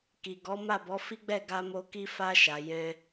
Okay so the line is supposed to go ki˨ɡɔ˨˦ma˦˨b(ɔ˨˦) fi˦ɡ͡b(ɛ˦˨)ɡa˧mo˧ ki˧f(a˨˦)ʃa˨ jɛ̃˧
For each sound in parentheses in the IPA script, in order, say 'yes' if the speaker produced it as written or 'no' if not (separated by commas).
yes, yes, no